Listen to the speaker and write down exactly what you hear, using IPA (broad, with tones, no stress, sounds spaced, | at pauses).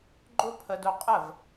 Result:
ɡ͡ǃ ʊ˦ pʰ ə˧ d ʊ˧ qʼ ə˦˨ v